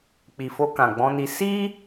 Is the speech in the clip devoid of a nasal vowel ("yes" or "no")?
no